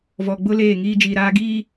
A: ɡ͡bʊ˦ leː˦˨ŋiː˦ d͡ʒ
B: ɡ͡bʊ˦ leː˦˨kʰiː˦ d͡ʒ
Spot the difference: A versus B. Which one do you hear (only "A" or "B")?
A